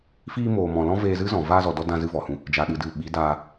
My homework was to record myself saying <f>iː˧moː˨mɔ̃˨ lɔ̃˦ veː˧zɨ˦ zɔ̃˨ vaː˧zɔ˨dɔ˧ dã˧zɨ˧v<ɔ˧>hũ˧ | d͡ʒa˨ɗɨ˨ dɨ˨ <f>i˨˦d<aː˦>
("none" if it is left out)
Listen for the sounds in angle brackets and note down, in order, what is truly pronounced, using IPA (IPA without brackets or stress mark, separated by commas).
f, ɔ˨, ɓ, aː˧